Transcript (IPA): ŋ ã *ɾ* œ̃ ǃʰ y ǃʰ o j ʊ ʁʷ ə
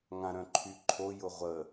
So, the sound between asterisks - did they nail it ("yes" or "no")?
yes